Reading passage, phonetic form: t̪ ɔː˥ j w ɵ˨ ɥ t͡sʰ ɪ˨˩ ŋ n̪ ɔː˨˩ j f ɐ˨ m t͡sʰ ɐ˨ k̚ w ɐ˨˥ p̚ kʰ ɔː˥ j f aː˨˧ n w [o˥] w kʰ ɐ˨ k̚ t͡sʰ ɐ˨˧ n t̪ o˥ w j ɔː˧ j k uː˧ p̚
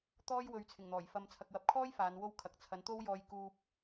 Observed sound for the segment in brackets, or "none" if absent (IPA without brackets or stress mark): o˥